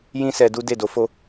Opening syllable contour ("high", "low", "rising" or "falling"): high